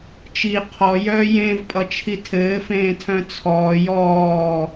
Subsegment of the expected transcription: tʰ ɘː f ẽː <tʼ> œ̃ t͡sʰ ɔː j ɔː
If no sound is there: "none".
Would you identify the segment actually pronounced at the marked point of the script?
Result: tʰ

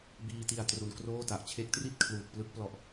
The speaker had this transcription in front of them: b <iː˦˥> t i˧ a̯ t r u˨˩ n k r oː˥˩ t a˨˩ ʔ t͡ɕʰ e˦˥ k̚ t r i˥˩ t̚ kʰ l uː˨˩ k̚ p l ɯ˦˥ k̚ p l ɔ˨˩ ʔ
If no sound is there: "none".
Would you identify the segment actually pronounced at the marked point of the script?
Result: iː˧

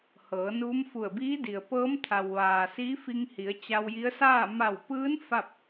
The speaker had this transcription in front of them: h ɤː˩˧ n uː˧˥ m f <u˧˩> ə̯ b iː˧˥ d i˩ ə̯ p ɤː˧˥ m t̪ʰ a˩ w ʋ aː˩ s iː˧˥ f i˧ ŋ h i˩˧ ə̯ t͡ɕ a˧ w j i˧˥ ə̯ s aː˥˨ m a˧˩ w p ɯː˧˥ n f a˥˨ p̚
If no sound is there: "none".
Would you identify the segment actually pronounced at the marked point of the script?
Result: u˧˩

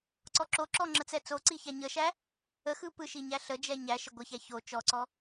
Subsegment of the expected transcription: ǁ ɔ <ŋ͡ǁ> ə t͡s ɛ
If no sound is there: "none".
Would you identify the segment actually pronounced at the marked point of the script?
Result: ŋ͡ǁ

